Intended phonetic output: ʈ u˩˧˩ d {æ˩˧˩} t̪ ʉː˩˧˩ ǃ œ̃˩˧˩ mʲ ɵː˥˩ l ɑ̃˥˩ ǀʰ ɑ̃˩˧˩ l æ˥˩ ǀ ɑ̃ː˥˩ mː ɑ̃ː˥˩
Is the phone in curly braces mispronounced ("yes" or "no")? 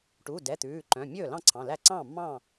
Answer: yes